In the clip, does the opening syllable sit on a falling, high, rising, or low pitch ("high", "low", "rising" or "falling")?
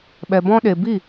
low